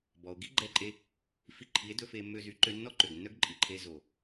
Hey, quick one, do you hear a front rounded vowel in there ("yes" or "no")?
yes